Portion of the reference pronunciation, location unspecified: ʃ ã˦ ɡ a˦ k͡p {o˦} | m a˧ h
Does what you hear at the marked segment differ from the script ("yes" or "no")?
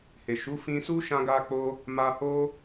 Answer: no